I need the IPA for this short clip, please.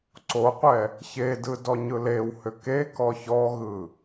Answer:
ǀoqʷɛ | çedɯ dɔɲɯlewhʏ ke kɔçɔɣɯ

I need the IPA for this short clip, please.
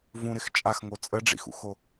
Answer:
vũɾɪx t͡ʃʼaxŋo t͡sʼəɖ͡ʐḭxṵxo

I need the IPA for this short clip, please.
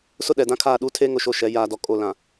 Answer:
sʊ˦ɗɛ˨ dã˦kʰaː˦˨ɗuː˦ tʰeː˦ ŋʊ˦ʃo˦ʃɛ˨˦ jaː˨dɔ˨ kʼo˦˨ lã˨

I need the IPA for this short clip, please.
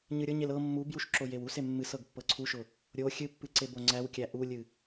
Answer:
ɲɨɾʲɤɲel ɤ mːubjuʃ ǁojewuse mːɨs ɤɡpːɤǀʰuʃʊ | ɾʲo xʲɨpːɨ ǀeboŋ͡ǀæwkʲæ ʔulʲɨ

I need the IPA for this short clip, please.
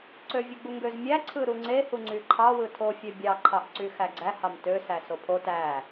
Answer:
ǀøvʲɯɡ͡buŋɡøz mʲæ ǀʰɯɾuŋ͡ǀe huŋ͡ǀyǃʰɑ wɯtʰo fʲøbʲɑ ǃʰɑʔǀyxæɡ͡ǀæ hɑmtø sæsopʰo tæ

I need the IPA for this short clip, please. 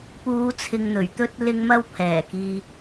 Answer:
puː˨˧t͡sʰɪ˨ŋn̪ɵ˨˩ɥt̪ɵ˧t̚ lɪ˧ŋmɐ˧w pʰɛː˨˩kiː˨

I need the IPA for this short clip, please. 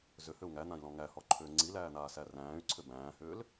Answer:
zʏhʏu̯ ŋæn̪ãi̯lɔ̃ ŋæhɔǃʰʏː ŋ͡ǀilæːn̪aːsæ ræ̃ːy̯ǀʰʏ bæ̃ːhʏːl

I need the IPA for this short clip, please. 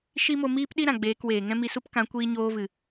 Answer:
ʃi˦mo˧ miː˦pɗi˦ ɾã˨ɡ͡beː˧kweː˨ ŋɛ̃˦mi˧su˦p kã˨˦kʷiː˧ɲoː˧vɨ˨

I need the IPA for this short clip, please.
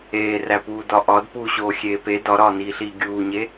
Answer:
eːræpuː dɒʔɒd puɕoː xʲeːpe dɒɾɒːniːɬiː ɡʲuːɲe

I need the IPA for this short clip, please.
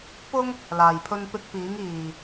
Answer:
pʊ˥ŋ | laː˨jpʰɵ˧npɪ˧k̚ piː˨˧ŋ iː˨

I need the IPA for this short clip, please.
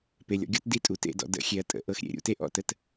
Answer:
pe˨lʲɔ̰˨ɡʲɔ˦t di˦tʼu˨tḛ˦˨dɔ̰˨ də̰˦˨xʲe˨ɐ̯ tʼə̰˨ ʔɤ˦xɾʲḛ˦˨ ɾʲṵ˨˦te˦ʔɔ̰˦ tə˦t

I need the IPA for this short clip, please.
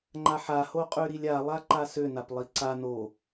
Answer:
ŋ͡ǃaħahoqʼø ɾilʲa lˠaǃasønap lˠiǀa no

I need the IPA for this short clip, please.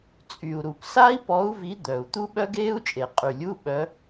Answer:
t͡sʼy˨˩u̯ɾu˨˩p sa˦˥i̯pɔ˨˦u̯vi˨˦ d̪œ˨˩u̯ t̪u˦˥ɓœ˦˥ɡeː˦˥u̯t͡ʃʼe˨˩ qʼy˨˩lʲu˧˥˧ɓœ˨˦

